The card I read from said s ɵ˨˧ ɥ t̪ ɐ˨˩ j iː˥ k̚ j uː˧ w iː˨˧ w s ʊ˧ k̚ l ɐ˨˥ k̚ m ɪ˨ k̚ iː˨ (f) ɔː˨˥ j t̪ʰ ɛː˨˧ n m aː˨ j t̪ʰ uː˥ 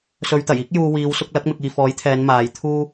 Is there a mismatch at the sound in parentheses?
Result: no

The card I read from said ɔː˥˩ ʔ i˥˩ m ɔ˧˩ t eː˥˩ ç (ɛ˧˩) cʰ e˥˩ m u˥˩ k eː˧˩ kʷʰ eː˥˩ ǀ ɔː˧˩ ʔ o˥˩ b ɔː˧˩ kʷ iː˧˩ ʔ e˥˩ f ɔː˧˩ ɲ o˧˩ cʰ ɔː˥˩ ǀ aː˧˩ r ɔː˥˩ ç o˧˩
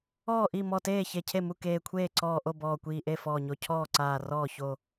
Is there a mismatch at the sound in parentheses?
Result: yes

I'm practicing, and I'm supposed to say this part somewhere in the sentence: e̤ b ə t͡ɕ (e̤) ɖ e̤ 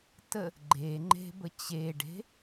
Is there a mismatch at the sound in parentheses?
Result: yes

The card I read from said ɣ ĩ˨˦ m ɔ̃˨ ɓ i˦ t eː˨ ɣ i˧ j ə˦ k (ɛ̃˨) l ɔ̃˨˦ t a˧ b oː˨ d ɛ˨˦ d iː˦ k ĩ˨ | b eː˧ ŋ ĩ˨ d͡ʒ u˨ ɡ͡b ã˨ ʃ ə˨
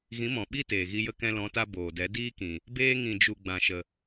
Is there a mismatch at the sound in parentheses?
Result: yes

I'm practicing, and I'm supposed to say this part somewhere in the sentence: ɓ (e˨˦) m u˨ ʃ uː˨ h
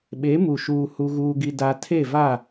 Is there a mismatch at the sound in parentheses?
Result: no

